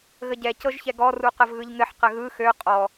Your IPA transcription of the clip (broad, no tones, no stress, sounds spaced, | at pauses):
ɣ ə ɟ ɛ c ɤ ʒ ç ɛ ɡ ɔ r u q ə v ɣ ɯ ʎ ŋ ɘ ħ q ə ɣ ɯ x ø qʼ ɔ